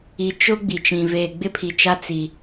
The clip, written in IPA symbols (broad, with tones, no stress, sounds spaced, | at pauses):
i˨ t͡ʃ ʊ˦ ɡ͡b i˨ t͡ʃ ĩ˨ v eː˨ ɡ͡b ɪ˦ pʰ i˨ t͡ʃ a˦ t͡s i˨